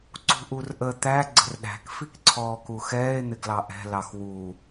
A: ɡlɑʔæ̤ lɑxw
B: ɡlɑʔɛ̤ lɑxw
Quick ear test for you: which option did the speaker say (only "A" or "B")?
B